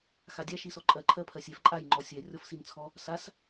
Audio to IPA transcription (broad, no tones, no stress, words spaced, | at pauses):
xadʲa ʃisɔǃʼɜ ǃʰɜpʰɜsʲɛf ǃʼaj ŋ͡ǃɔsʲɛ rʲɔfsint͡sʰɔ | sas